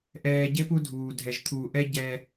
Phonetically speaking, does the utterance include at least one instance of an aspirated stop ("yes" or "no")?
yes